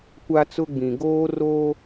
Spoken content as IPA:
kʷa˦t͡sʊ˦ɡ͡bĩ˨ ɡoː˦roː˦

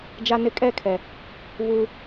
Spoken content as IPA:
d͡ʒa˦nɪ˦ kʼɛ˦˨kʰɛ˨ | βuː˦

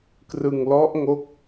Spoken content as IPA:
krɯ˧ŋlɔ˦˥ʔŋo˦˥k̚

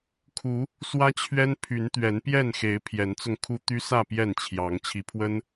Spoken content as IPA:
kʰu˨˦ | swä˦t͡ɕʰɥɛ˦n pʰy˨˦nt̪ɥɛ˨˦npjɛ˥˨nxe˨˦ɪ̯ pʰjɛ˨˦nt͡sʊ˧ŋkʰu˦ t̪y˦sä˥˨ pjɛ˥˨nt͡ɕʰjɑ˨˦ŋ t͡ɕʰi˨˦pʰwə˦n

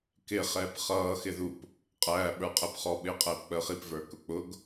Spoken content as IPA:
kɪ χɛːpχʌː xɪðup | qʼæː ɓə˞qʼɛpχɔ ɓɪːqʼɛːpk͡pəːχip və˞kʊk͡pʊɡ

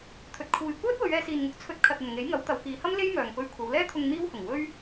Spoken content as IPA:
t̪ʰɵ˨t̚kʰuː˨j kʷœː˥t̚ wɵ˨˧ɥɛː˧siː˨nŋʊ˨˥k̚ t͡sʰɵ˧t̚ kʰɐ˨t̚ ɐ˨nŋe˨˥jŋɐ˨˥w t̪ɐ˨˧wkiː˨˧hɐ˥m le˥j mœː˨ŋpɵ˧ɥkʷʰɐ˨˧wlɛː˥ t̪ʰʊ˧ŋ n̪iː˥whʊ˨˩ŋ wɵ˥ɥ

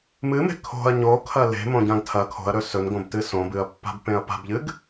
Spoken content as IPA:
mɨme̤ kʰo̤ɐ̯ ɲokʰɐ le̤mõɟãɡ tʰɐ kʰo̤ɐ̯ɾɵ sɵnɡõbtɨ sõbɨɐ̯pːa̤bpẽɐ̯ pa̤bʎɨɡ

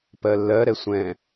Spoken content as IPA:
pɜlːɜ ɾɛsʷɛ̃

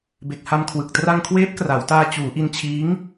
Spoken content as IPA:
be˨˩k̚ha˧mkʰwɯ˨˩k̚ tra˧ŋkʰweː˦˥p̚ kra˩˦wtaː˧ t͡ɕuː˩˦ʔi˧n t͡ɕʰiː˦˥ŋ

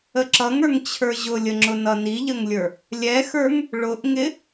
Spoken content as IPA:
əǁʌŋə˞ŋ t͡ɕʰə˞ʑʊlʲəŋ͡ǁʊ nʌniʎəŋlʲə˞ | lʲɛxə˞ŋ | ɭʊʔŋɪ

